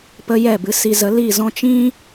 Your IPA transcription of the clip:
pə˧ jɛ˦˨bɨ˧ si˧zə˨˦ li˦˨zɔ̃˦ t͡ʃĩ˦

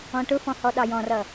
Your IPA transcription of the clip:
ɔ̃ʈʊfɔ̃ hɔɗɑjɔ̃rʌ

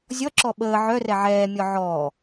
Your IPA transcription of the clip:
zʲɔǁɔ ɓəː ʕœrɛ ʕɛːmʲɔ ʕɔː

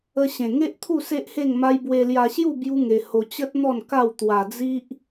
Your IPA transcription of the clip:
ə˧ɕẽ˨˩ŋe˦ʔt̪ʰu˥˧ se˦ʔhe˥˧ŋma˦j bwe˧lja˧ɕju˥˧ bju˦ŋe˧ ho˧t͡ɕə˦t̚ n̪ɔ˥˧nka˥˧w t̪wa˧d͡zi˦ʔ

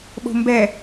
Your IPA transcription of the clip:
ɓo̤mbɛ

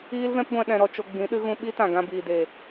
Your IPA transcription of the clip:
iː˦lvɛ̃˦pɡʷɛ̃˧ ɗɛ̃˧ ɾɔ˧ t͡ʃo˧ ɡ͡bĩ˨˦ɗɨ˦ɣũ˧ ɓi˦tã˨ ɡã˧ biː˨deː˨

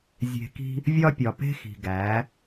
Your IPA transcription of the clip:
zʲe̤˨ki̤˧ | vʲɒ˦pʲɒ˨pe̤˦xi̤˨ ɡæ˨˦

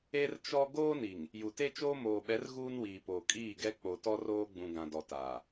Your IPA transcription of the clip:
e˦rt͡ʃɔ˦ ɡoː˦ni˨ŋ | ju˨te˦t͡ʃoː˦ moː˨ɓɛ˨˦r ɣuː˦nwiː˨poː˨ kʼiː˦˨ɡɛ˦ k͡po˨tɔ˦roː˦ɡ͡bũ˨ ɡã˨dɔ˨taː˨

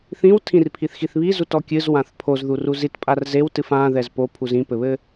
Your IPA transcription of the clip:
θĩwtʰĩr pʰiθxiθβizut ɔkʲɨz wãθpʰozðu ruzitpʼar zewtɨf ã ðɛzpo pʰuzĩpɘβɘ

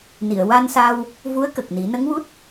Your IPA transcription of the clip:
ni˨˩˨ə̯ wa˧nsa˧w | vu˧˥ə̯kə˨˩k̚ni˨˩˦ nə˧˥ŋwu˦˥t̚

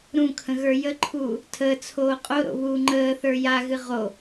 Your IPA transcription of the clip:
ɾũkʰə̃ ɣə˞jəǃʰuː | tʰəːt͡sʰoː qʼoɾo̰ βuːŋ͡ǃəːθə˞ jaɣɨ ʁo

